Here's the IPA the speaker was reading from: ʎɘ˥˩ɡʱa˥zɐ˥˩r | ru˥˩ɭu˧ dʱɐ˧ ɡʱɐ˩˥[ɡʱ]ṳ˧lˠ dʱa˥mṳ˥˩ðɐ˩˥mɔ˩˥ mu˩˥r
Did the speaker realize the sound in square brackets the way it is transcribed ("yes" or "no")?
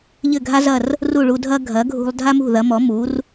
yes